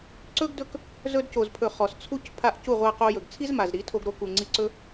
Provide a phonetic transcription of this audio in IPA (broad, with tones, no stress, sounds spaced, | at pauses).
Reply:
ǀ ɵ˦ ɡ d ɵ˦ k | z ɵ˧ d c o˨ z pʰ ɵ˨ χ ɔ˨ s t͡sʰ u˦ c pʰ a˦˨ ʔ c u˦˨ ʁʷ a˧ q o˧ j ɵ˨ ɡ t͡sʰ i˦ z m a˨ z ɾ i˨˦ tʰ o˧ ɡ ɾ o˧ k u˨ ŋ͡ǀ i˧ ǀ ɵ˦